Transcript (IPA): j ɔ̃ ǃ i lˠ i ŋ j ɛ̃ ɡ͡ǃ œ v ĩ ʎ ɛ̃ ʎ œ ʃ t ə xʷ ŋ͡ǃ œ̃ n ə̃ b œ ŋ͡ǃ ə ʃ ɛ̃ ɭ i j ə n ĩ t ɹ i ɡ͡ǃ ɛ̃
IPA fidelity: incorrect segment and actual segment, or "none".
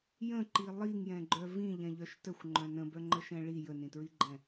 ɔ̃ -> ə̃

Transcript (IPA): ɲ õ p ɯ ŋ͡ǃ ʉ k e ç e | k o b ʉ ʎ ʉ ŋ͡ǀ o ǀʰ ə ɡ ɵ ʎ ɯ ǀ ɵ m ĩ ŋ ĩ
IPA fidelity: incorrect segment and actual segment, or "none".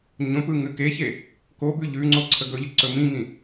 ŋ͡ǃ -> ŋ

